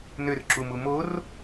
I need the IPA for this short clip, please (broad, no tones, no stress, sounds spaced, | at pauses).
n ø r ǁ u m u m o r